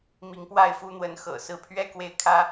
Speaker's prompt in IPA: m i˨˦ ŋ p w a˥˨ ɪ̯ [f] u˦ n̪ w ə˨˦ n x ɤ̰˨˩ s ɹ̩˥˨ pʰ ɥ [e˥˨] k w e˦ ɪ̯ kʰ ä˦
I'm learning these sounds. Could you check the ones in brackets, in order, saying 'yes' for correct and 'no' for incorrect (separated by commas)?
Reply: yes, no